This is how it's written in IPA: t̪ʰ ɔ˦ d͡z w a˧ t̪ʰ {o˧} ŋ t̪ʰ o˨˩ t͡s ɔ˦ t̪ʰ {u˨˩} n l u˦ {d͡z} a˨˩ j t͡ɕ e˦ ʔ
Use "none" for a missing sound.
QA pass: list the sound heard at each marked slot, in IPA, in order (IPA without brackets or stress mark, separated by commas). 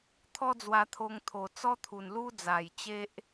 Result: o˧, u˨˩, d͡z